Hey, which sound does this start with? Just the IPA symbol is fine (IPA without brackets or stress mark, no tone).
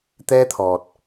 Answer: t̪